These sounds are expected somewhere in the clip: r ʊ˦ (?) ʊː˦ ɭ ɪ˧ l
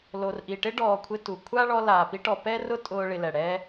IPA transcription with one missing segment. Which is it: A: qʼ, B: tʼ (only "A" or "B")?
B